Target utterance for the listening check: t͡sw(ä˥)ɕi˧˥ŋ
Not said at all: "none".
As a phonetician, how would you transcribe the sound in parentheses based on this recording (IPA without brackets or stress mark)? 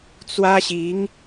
ä˥